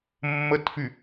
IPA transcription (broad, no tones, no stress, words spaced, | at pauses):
mːətfy